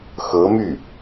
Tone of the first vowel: rising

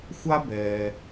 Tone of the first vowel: high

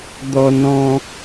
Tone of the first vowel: high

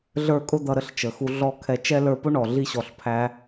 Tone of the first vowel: falling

